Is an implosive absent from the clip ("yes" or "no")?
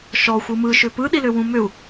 no